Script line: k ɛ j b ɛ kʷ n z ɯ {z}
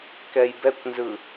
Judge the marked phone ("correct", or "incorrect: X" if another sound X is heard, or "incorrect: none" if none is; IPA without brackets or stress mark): incorrect: none